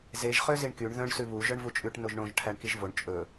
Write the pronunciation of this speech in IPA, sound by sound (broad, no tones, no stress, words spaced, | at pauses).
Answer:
zeʒ χøziɳkyɳ ðœ̃ɳ sʉβu ʒœɳvut͡ʃʼʉʈ noʒɳõʒ ʈʰæɳkiʒvoɳ t͡ʃʼɵ